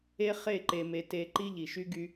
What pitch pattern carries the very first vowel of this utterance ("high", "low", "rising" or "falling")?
high